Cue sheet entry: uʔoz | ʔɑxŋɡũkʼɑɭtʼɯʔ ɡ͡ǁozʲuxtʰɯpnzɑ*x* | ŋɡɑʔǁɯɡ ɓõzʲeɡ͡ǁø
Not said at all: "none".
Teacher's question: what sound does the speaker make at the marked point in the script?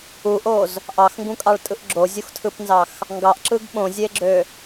x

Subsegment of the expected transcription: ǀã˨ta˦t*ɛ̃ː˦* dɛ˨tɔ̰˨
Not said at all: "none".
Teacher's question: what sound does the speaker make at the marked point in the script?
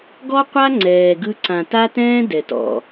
ɛ̃ː˦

